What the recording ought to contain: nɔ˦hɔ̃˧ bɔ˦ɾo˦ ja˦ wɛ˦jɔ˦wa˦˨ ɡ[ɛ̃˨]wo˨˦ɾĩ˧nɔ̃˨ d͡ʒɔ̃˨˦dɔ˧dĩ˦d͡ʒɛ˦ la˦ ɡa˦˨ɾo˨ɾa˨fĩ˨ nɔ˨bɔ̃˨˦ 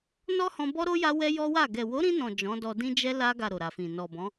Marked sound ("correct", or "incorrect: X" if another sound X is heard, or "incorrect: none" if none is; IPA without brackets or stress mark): incorrect: ɛ˨